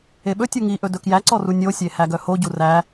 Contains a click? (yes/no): yes